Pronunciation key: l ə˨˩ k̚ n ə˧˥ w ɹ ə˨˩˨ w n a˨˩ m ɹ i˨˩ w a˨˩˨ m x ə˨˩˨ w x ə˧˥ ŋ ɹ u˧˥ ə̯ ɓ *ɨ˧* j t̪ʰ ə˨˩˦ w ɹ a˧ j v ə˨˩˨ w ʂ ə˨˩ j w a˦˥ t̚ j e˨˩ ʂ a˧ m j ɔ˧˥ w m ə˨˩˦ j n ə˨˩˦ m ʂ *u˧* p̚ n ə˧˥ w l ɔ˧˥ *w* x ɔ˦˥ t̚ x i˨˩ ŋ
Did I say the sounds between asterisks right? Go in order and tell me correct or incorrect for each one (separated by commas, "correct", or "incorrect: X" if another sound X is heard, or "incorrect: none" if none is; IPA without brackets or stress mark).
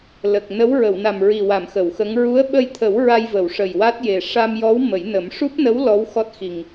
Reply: incorrect: ə˧, incorrect: u˦˥, correct